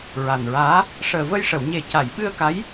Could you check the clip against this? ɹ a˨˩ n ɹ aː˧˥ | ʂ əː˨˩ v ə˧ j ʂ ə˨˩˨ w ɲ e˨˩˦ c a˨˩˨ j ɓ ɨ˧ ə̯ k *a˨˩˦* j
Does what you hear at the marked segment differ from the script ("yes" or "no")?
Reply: yes